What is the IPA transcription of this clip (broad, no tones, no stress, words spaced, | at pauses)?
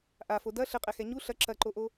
ʔafo dɐ ɬɘqʼɛxɛ ɲu ɬɐ ǁɐǃoʔo